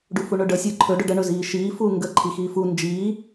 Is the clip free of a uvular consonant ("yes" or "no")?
yes